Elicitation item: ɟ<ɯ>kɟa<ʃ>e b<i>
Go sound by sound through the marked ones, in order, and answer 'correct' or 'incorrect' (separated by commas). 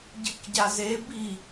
correct, incorrect, correct